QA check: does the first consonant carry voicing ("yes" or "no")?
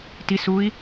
no